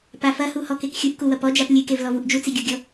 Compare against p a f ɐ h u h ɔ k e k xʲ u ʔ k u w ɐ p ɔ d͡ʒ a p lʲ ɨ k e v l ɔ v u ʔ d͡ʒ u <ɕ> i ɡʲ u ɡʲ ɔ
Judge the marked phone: incorrect: t͡s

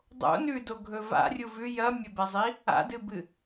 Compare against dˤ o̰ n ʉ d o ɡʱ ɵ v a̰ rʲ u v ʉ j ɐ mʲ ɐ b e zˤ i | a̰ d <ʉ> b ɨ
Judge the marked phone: incorrect: ɨ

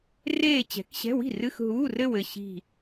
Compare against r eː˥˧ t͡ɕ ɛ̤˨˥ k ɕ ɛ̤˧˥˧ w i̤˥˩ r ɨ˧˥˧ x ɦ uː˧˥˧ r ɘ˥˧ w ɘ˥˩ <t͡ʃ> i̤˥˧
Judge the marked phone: incorrect: ɕ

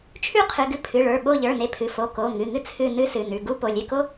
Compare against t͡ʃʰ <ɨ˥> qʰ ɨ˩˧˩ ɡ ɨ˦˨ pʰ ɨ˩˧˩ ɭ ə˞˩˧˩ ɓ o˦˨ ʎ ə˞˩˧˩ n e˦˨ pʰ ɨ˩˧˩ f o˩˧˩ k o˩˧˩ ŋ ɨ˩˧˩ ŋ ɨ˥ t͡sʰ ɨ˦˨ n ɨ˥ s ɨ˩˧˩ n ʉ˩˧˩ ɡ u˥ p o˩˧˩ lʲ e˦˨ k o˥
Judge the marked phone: incorrect: ʉ˥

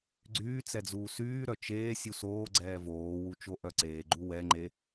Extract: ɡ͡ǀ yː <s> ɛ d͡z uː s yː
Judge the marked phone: incorrect: t͡s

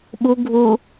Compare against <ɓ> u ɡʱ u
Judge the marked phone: correct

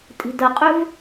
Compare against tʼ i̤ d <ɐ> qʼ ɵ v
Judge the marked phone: correct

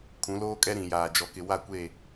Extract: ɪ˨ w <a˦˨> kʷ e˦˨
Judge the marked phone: correct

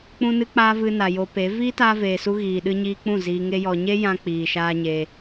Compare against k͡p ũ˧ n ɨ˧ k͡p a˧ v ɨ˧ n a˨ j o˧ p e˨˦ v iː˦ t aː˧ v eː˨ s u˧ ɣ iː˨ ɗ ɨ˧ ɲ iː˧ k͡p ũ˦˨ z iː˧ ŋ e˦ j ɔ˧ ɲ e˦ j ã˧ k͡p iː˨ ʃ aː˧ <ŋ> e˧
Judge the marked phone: incorrect: ɲ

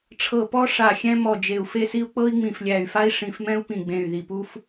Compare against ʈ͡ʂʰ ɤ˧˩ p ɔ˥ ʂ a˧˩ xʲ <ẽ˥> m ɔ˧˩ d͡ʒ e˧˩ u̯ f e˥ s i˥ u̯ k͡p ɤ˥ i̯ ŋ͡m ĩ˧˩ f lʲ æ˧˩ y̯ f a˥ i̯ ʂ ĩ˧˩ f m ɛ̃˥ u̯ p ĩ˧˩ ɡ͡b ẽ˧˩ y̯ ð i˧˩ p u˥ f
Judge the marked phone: incorrect: ɛ̃˥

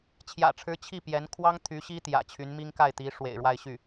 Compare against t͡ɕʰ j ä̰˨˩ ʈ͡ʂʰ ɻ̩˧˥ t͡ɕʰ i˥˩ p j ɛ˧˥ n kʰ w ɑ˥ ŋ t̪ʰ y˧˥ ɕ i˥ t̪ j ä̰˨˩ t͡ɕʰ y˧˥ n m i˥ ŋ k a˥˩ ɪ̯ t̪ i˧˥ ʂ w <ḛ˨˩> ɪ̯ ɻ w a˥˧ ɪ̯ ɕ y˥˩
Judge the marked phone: correct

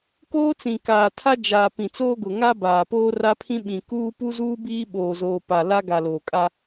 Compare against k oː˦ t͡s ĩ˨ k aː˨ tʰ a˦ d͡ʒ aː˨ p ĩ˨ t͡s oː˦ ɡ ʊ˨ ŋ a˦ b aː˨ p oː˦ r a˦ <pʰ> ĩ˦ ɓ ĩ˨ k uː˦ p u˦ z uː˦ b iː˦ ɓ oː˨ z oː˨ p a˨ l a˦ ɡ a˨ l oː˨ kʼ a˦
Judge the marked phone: correct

